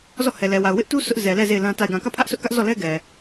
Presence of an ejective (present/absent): absent